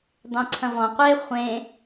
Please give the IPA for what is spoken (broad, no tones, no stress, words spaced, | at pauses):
dˤẽǀʰɐ̃vɔ̃qʷeː χʷẽ